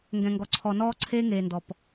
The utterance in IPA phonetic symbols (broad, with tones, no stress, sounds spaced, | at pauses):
ŋ ɡ ɛ̃˨ ŋ ɡ ɔ˨ ǀʰ ɔ˨ n ɔː˦ ǀʰ eː˦ ŋ eː˨ n d ɔ˨ p